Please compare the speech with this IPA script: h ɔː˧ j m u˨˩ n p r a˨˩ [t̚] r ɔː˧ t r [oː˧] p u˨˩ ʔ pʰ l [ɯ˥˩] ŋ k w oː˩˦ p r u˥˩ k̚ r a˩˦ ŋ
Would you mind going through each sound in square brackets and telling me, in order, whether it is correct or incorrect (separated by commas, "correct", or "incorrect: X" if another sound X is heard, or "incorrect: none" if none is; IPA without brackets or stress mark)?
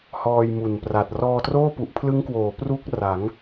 correct, incorrect: oː˥˩, incorrect: ɯ˦˥